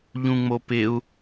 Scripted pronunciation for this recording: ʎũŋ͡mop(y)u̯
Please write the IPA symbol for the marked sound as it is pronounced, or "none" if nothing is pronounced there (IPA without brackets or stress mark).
ɪ